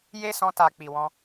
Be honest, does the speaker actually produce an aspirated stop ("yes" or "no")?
no